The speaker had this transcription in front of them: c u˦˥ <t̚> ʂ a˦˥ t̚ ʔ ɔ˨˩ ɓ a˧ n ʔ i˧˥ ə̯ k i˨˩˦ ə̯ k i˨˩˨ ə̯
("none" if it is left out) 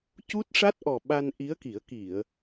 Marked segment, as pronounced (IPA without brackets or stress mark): t̚